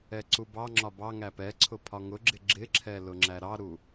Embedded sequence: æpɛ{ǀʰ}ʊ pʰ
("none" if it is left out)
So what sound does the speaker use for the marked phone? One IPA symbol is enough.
ǀʰ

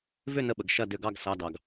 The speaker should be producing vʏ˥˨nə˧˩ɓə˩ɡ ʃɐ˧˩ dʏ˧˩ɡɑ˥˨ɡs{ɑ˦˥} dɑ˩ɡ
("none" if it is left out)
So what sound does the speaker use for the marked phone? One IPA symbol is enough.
ɑ˩˧˩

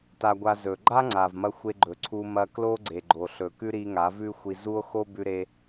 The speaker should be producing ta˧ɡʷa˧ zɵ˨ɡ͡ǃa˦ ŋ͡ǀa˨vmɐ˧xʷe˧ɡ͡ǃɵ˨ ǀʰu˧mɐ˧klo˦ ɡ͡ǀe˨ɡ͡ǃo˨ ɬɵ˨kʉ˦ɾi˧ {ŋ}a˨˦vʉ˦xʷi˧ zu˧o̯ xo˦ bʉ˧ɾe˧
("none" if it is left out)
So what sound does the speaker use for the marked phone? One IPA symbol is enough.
ŋ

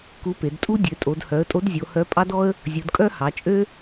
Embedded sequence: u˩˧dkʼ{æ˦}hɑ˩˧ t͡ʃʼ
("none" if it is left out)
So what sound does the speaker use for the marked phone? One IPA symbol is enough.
œ˦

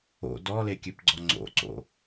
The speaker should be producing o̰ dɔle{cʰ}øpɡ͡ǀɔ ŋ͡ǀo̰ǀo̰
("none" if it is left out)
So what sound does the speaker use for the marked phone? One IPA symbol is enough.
kʲ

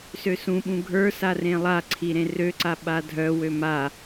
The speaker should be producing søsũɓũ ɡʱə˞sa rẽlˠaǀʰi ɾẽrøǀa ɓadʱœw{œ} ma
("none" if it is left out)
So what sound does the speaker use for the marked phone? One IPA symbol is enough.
ø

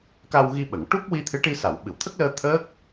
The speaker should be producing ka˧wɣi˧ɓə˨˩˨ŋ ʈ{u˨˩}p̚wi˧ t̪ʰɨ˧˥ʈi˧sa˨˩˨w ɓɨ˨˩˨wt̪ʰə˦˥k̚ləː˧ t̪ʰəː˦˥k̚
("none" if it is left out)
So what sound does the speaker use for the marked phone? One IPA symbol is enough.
u˦˥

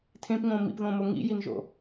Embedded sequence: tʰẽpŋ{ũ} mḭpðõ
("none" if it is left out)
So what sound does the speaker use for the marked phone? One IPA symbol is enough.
õ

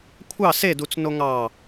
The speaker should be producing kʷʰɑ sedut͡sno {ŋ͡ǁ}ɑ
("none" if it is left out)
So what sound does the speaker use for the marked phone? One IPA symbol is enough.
ŋ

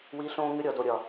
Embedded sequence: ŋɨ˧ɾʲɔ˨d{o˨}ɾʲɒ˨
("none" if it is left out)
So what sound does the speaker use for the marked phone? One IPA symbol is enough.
o˨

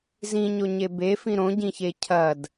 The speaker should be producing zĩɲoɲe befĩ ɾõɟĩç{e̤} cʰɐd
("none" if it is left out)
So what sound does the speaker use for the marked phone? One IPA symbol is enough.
e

